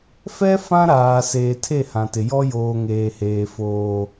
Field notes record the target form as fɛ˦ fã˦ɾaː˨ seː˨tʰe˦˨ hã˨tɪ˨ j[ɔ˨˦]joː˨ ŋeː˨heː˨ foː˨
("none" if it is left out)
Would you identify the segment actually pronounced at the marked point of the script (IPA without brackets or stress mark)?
ɔ˦